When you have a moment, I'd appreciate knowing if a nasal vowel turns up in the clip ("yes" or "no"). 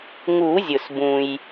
yes